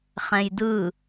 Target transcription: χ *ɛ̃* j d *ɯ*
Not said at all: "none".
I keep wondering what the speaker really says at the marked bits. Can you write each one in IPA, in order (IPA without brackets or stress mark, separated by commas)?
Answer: ɛ̃, ɯ